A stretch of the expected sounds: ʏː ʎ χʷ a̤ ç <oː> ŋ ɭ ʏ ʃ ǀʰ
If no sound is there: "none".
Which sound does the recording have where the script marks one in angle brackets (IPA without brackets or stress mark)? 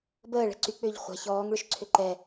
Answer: ɔː